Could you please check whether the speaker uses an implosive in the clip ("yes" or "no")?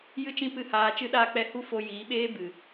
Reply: yes